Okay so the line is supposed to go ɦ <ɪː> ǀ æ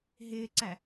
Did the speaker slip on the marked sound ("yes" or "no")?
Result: no